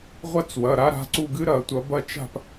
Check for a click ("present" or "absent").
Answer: present